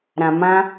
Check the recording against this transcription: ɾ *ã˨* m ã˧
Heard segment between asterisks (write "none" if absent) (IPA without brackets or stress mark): ã˨